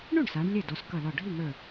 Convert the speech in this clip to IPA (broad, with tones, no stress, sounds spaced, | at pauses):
ɳ u˥˩ ɳ s a˨˦ ɳ lʲ ɘ˥˩ d ɔ˨˦ s k ʌ˧˩ l ɔ˧˩ ɖʱ i˥˩ ŋ ə˞˧˩